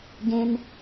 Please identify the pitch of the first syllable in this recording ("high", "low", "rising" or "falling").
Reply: high